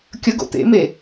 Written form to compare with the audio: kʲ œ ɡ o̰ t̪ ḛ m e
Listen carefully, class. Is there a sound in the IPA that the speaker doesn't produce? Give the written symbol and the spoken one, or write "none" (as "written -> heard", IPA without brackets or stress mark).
œ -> ə